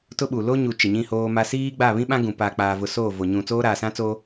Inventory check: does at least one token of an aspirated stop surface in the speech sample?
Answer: no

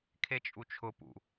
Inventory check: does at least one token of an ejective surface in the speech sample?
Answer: yes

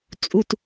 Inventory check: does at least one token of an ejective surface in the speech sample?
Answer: yes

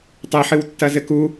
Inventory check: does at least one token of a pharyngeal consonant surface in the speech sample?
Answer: yes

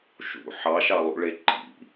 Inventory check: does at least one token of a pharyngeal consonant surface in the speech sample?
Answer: yes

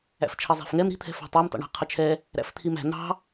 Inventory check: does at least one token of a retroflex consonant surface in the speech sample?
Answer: yes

